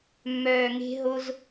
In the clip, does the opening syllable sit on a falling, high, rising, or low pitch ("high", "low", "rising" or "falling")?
low